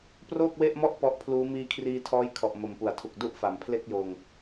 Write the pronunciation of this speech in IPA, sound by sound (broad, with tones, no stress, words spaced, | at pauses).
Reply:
proː˥˩k̚we˥˩ʔmɔ˥˩ʔ pɔ˦˥ʔpʰluː˦˥ miː˧kʰriː˧tʰɔː˦˥j kʰɔ˨˩ʔmo˨˩mpu˩˦a̯tʰu˨˩k̚ du˥˩ʔfa˩˦mpʰle˥˩k̚joː˧ŋ